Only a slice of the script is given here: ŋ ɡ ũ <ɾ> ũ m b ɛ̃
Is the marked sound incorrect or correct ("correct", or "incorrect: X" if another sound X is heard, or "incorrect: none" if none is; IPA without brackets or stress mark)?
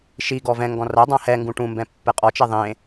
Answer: incorrect: ʈ